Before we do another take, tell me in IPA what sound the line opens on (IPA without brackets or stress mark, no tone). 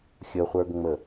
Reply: xʲ